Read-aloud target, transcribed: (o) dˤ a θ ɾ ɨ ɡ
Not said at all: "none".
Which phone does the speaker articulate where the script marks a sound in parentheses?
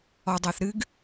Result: ɔ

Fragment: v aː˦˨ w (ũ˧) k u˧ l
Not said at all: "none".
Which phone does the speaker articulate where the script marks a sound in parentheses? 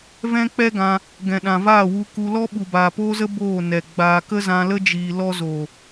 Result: u˧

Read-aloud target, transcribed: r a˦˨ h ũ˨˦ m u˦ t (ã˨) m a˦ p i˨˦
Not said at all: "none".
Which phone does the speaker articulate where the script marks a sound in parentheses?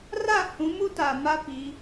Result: a˨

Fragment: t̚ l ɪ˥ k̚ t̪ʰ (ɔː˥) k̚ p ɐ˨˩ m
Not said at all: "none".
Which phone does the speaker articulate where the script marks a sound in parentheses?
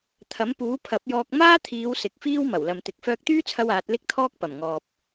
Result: ɔː˥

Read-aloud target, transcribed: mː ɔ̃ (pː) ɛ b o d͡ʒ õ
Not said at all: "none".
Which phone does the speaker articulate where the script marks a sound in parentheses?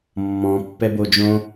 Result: pː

